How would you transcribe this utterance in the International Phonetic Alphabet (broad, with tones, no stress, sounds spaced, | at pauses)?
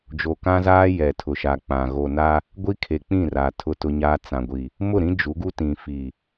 d͡ʒ o˨ k ã˦ z aː˦ j ɛ˨ tʰ ʊ˨ ʃ a˨ k͡p ã˨ ɣ o˨ n a˦ | ɡʷ i˦ kʰ e˨ k͡p ĩ˦˨ r a˨ tʰ ʊ˦ t ʊ˦ ɲ aː˦ t͡s ã˨ ɡʷ i˨ | m ʊ˦˨ ɾ ĩ˦ d͡ʒ u˨˦ ɡ u˦ t ĩ˨ f i˨